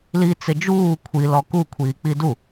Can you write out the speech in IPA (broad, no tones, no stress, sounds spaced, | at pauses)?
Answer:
l i t͡s ɪ d͡ʒ uː kʷʰ i l ɔ k u kʷʰ iː k͡p i d u